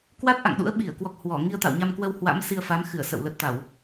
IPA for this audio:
k w a˦˥ t̚ ʔ a̰˧˨ ŋ ɗ ṵ˧˥ ə̯ ɓ i˧˩ ə̯ k w ɔ˨˩ k̚ h w ɔ˧˩ ŋ i˧ ə̯ t̪ a̰˧˨ w ɲ a˧ m k w ə˧ w h w a̰˧˥ m s i˧ ə̯ f a˨˦ m x ɨ˧˩ ə̯ s ə̰˧˨ w l ə˨˩ t̚ t̪ a˧˩˨ w

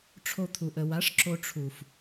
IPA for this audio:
ʈ͡ʂʰ o˧ t̪ʰ u˨ ʔ ə˨ w a˨˦ ʂ ǁ o˧ ʈ͡ʂʰ u˨ f

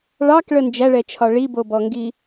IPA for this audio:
ɭ ɑ k ɭ ə n d͡ʒ æ ɭ ɛ t͡ʃʰ ɒ ɭ i b o b ɔ ŋ ɡ i

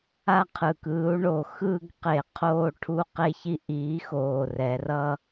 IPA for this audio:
a˥˧ qʰ ɯ˨˩ k ɯː˨˥ u̯ ɳ o˧˩˧ x ɯː˥˧ ɡ q e˧˩˧ qʰ oː˥˧ ʈʰ u˥˧ q e˥˧ ç i˥˧ ʔ iː˨˥ x oː˨˩ r ɛ˩˧ r ʌ˥˧

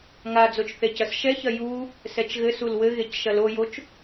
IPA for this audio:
ŋ a d͡z o t͡ʃ θ e c ɐ s ʃ ɛ ç ɐ j u | s ɛ t͡ʃ ɣ ɘ s u l w ɘ ɣ e c ʃ ɐ l o j o t͡ʃ

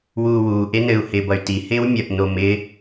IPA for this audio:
w uː w uː ʔ e n ɘ u̯ h ɪː b ʌ y̯ t i h ɪː w mʲ ʌ ʔ n o m ɪː

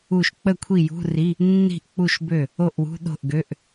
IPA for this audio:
u˥˩ ʃ k͡p ə˥˩ kʷʰ i˥˩ j ṳ˧˥˧ r i˧˥˧ | nː i̤˥˩ ʔ k͡p u˥˩ ʃ b ø˥˩ | o˥˩ ʔ w ṳ˧˥˧ ɗ o̤˥˩ ʔ ɡ ø˧˥˧ ʔ

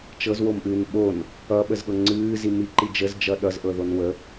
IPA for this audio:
t͡ʃ ɤ z w o m ʔ ɨː n ɓ o n | ʌ ɓ ə z ɠ ɤ ŋ͡ǀ ɨː z i m i ǃ i d͡ʒ ə z d͡ʒ ʌ ɗ ʌ z ʔ ɤ ð o n w ə

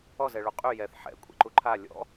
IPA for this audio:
ɔ z ɛ ɭ u qʼ y j ɛ θ ħ ɛ̰ kʷʼ ɛ̰ ǃ u ǃʰ a lʲ ɔ̰

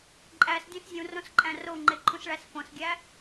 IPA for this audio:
ǃʼ æ s dʲ õ s zʲ ũ r õ s ǃʼ æ̃ r o ŋ͡ǃ e ǃʰ ũ s ɭ æ s f õ s ɡʲ æ

